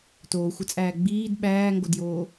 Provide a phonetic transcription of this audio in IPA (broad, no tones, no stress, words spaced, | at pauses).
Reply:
toːxʷət͡sʼæː ɡ͡biːd ɓæːŋɡodjoː